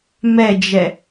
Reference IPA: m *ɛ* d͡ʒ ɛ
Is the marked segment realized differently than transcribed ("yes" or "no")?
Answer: no